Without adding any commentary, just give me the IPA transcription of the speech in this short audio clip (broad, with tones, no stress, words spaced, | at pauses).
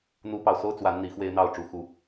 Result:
n̪u˦pɑ˨ʊ̯ so˦ʊ̯ t͡swa˨˦n n̪i˨˦xwe˦ɪ̯n̪ɑ˥˨ʊ̯ ʈ͡ʂu˨˩xu˨˦